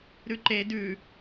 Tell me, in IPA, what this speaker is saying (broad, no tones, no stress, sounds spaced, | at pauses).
ɾ ʉ ǃ e d ʉ